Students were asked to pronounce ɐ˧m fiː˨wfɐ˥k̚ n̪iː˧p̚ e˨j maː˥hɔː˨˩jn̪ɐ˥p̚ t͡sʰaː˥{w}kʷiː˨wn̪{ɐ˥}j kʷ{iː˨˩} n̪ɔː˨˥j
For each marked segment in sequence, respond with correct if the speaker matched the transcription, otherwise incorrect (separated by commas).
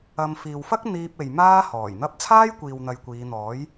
incorrect, incorrect, incorrect